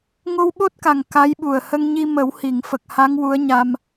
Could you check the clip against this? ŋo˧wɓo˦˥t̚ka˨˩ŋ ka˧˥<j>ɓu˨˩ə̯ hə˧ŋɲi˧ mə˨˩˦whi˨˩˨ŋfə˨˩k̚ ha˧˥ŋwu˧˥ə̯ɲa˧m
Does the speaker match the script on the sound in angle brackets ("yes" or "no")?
yes